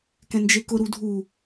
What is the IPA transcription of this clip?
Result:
k ɛ̃ n d͡ʒ e k ʊ ɾ u dʱ u

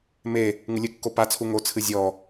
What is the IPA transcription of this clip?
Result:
m e | ŋ ɨ lʲ ɨ kː o p a t͡sʰ u ŋ o t͡sʰ ɨ zʲ ɔ

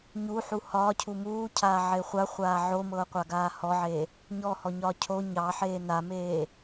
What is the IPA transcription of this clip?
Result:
ɲ u ħ u h ɒː cʰ u m uː cʰ aː ʕ e χʷ a χʷ aː ʕ o m ɤː qʷ a ɡ aː h ɔ ʕ eː | ɲ ɔ h ɔ ɲ ɒː cʰ o ɲ ɑ ħ eː n a m eː

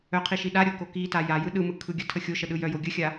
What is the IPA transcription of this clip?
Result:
œ qʰ i ʃ i ɗ a ɾʲ o k o k i t a j a j ɯ ɗ ɯ m ɯ kʰ ɯ ɡʲ ə tʰ ə xʲ o ʃ ə ɗ ɯ j œ j o ɡʲ ə xʲ a

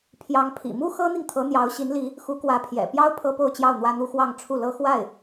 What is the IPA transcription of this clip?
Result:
pʰ j ɑ˧˥ ŋ pʰ ḭ˨˩ m u˥ x ɤ˥ n̪ i˨ ŋ t̪ʰ ɤ˧˥ n̪ j ɑ˧˥ ʊ̯ ɕ i˧˥ n l i˧˥ | x u˧˥ k w ä˧˥ pʰ j ɛ̰˨˩ p j ɑ˥ ʊ̯ pʰ ɤ˥ p o˥˧ ʊ̯ t͡ɕ j ɑ˥˩ ʊ̯ n̪ w ä˥ n̪ u˥ x w ɑ˥˧ ŋ ʈ͡ʂʰ u˥˩ l ɤ˥ x w a˥˩ ɪ̯

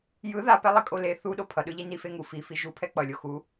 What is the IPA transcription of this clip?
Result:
j ɯ ð a p ɛ lˠ i kʼ o l e θ u ɗ o pʰ ʌ ɗ ɯ ʎ i n i f e ŋ u f i f i ʒ u pʰ ɛ k͡p ʌ lʲ o x u

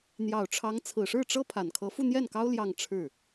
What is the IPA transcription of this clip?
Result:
n̪ j ɑ˨˩ ʊ̯ ʈ͡ʂʰ ɑ˧˥ ŋ t͡sʰ ɹ̩˨˩ ʂ ɻ̩˥˩ ʈ͡ʂ ɤ˥ pʰ a˨˩ n kʰ ɤ˧˥ f u˥˧ n̪ j ɛ˥˩ n k ɑ˥ ʊ̯ l j ɑ˥˧ ŋ ʈ͡ʂʰ ɻ̩˥˩

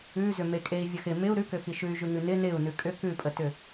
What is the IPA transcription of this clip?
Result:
ʉ z ʏ m e kʼ e i̯ vʲ ə x ɪ m ɪ u̯ ɾ ʉ k ʏ x i ʃ ʉ y̯ ʒ ʉ ŋ ʉ n ɪ n ɪ u̯ n ʉ kʼ ʏ k ʉ pʼ ə t ʏ

